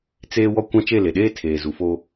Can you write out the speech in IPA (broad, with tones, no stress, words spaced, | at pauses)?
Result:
t͡seː˦ wɔ˦kʷã˦ t͡ʃe˦˨le˨ɗeː˦tʰeː˨ zu˨fo˦